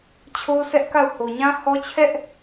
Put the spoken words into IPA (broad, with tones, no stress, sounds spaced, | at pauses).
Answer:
t͡ɕʰ o˦ ʊ̯ s ɛ˦ ʔ k a˦˨ ʊ̯ h o˨ ɲ ã˦ h ɔ˦ t͡ɕʰ ɛ˦ ʔ